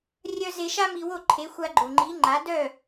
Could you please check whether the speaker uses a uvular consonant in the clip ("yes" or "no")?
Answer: no